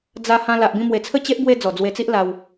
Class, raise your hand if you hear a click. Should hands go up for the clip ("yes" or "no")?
no